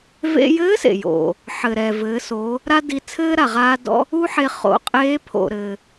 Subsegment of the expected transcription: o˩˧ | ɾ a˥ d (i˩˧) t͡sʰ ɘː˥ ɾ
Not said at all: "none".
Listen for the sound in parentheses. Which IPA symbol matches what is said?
i˧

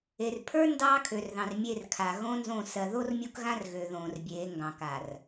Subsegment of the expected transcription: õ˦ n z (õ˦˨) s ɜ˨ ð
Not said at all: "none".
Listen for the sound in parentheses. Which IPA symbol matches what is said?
õ˦˨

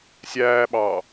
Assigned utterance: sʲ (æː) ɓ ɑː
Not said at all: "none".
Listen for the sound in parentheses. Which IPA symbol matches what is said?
æː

